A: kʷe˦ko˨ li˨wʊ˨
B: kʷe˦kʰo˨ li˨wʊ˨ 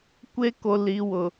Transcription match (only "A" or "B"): A